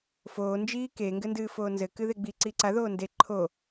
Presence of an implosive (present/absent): absent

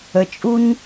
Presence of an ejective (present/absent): present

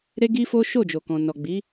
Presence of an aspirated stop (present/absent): absent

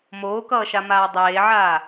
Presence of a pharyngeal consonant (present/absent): present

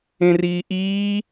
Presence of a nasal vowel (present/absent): present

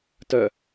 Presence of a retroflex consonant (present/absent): absent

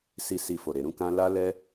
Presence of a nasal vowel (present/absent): present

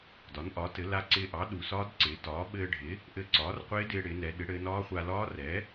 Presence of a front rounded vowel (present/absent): absent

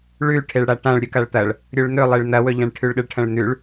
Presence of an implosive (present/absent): present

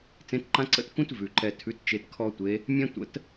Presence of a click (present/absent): present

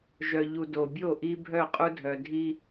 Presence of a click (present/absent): absent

